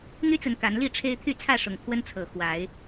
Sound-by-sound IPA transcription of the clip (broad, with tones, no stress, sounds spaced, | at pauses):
n̪ y˦ t͡s ə˨˦ n k a˨˦ n l i˥˨ ʈ͡ʂʰ e˦ ɪ̯ t̪ʰ y˥˨ t͡sʰ ä˥˨ ʂ ʊ˨˩ ŋ kʰ w ə˦ n t͡sʰ ɤ˨˩ x w a˨˦ ɪ̯